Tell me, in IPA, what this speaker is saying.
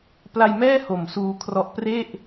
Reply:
p l a˧ j m ɛː˥˩ h o˨˩ m s uː˧ kʰ r ɔ˦˥ ʔ p r e˥˩ ʔ

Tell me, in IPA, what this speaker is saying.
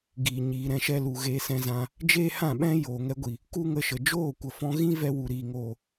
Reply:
ɡ iː˨ ɲ iː˨ ɾ ɛ̃˦ ʃ ɛ˦ l u˨ ɣ eː˧ s ɛ̃˧ z ã˧ | d͡ʒ eː˦ h ã˦˨ ɓ ɛ̃˦ j oː˨ ŋ ɛ˧ ɡʷ i˨ | k u˦ ŋ ə˧ ʃ ə˨ d͡ʒ oː˦˨ kʷ ə˨ f ɔ̃˧ ɣ ĩ˦ v ɛ˦ w u˨ ɾ iː˨ ŋ oː˨

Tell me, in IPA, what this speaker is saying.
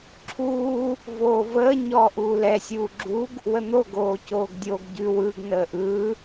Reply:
ǁʰ uː | v oː v əː ɲ ɔː ʔ uː l ɛ sʲ uː ɡ͡ǁ u ɡ | w ə n̪ o ɡ oː c oː ɡ dʲ o ɡ ɟ ʉ w ɯ ɡ n əː ʔ ɯː

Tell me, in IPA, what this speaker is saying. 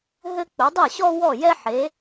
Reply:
ɦ ɘ˥ k͡p ɵ˩˥ dˤ ɛ˥˩ ɕ ɔ˥ w ɔ˥˩ j ɛ˥ ħ e˩˥

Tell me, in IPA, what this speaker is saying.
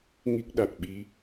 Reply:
ŋ i˦˥ k̚ ɗ a˨˩ t̚ ɓ i˧˥

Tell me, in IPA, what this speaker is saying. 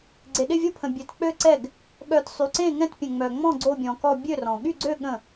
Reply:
ɡ͡ǀ e˨ ɗ ɪ˥˨ vʲ o˥˨ pʰ ə̃˨ bʲ ø˨ t k͡p ø˥˨ ǀ ɛ˥˨ ɡ | ɠ œ˨ t sˤ y˨ ǀ ẽ˥˨ ŋ ɛ̃˥˨ t pʲ ə̃˨ ŋ͡m œ˨ ŋ͡m ɔ̃˥˨ ɡ͡ǀ o˥˨ bʲ ɔ̃˨ k ɔ˥˨ bʲ ø˥˨ r ɔ̃˨ ɠ y˥˨ ɡ͡ǀ ø˥˨ ɠ ə̃˥˨

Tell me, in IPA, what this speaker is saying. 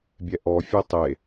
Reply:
bʲ ɛ ʔ ɔ fʲ ɛ tˤ e

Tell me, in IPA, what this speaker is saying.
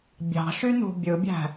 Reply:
bʲ ɑ̤ ʃ y n ṳ bʲ ɯ bʲ æ̤

